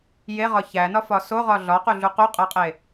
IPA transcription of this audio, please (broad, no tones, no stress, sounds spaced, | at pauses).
j e ʁ ɒ ç æ n ɒ f ɒ s o ʁ ɒ ɮ ɒ q u ɮ u q u qʼ æ qʼ e